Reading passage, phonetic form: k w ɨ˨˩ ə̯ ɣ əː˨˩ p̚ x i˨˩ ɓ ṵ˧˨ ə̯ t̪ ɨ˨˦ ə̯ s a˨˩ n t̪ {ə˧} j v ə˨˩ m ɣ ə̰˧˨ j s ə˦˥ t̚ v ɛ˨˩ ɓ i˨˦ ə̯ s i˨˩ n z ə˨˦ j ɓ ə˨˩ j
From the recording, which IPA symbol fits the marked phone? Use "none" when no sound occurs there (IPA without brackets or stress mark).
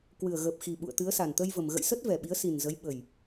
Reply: ə˧